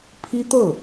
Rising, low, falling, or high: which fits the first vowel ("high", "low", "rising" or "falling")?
high